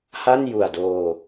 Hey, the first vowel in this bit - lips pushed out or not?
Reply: no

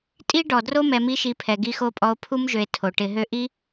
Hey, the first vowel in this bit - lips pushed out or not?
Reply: no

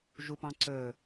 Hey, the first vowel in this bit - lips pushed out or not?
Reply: yes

